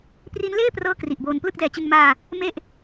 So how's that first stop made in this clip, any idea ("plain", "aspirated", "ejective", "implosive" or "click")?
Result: plain